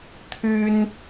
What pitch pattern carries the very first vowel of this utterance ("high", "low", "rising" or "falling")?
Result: high